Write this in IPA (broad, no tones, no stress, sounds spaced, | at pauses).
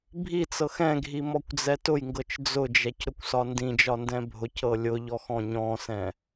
bʱ i t͡s ɤ x ɛ̃ ɡʱ i m ɔ kʷ d͡z ɛ t ʊ j ŋ ɡ ɤ t͡ʃ d͡z ʊ d͡ʒ ɛ c ɾ ʊ kʷ s ɒ n d ĩ d͡ʒ ɒ n d ɛ̃ bʱ ʊ c ɤ lʲ ʊ ʎ ɔ x ɔ̃ ɲ ɔ̃ s ɛ̃